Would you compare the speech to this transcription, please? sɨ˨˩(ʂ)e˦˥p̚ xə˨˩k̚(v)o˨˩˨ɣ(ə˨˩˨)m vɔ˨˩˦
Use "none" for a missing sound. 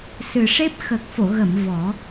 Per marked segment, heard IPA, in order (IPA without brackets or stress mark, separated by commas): ʂ, f, ə˨˩˨